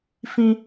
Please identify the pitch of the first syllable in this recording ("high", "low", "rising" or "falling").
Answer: high